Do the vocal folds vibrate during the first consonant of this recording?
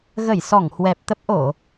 yes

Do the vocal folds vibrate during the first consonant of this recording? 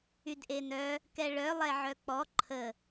yes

